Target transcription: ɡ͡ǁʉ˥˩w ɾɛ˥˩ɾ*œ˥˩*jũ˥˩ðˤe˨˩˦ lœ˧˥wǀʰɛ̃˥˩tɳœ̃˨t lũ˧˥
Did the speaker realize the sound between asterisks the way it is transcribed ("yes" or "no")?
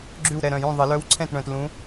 no